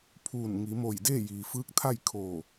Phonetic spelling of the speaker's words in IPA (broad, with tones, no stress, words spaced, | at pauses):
pʰuː˧˩n ŋi˩˧mo˧˩j deː˥˨jiː˩fɯː˧˥k̚t̪ʰa˥˨j kʰoː˧˩